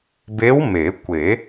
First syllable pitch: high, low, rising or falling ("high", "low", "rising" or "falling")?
rising